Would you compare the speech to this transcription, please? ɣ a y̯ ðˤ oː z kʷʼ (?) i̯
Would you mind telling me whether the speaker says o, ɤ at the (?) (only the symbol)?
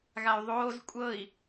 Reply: ɤ